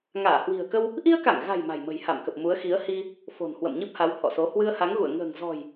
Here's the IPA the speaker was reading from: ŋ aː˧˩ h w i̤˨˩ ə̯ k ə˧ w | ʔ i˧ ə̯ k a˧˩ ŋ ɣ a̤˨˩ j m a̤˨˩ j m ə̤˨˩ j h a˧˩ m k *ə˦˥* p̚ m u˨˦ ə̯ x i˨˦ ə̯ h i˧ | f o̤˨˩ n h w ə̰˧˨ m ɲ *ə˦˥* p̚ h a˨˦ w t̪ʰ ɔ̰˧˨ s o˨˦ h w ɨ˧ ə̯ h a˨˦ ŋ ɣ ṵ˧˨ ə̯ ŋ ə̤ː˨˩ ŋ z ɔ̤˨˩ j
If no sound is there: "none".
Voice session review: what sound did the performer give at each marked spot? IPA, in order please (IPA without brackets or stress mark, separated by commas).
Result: ə˨˩, ɨ˦˥